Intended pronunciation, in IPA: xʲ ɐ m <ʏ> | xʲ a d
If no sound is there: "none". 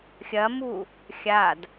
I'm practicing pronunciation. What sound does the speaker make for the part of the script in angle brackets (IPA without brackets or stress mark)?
u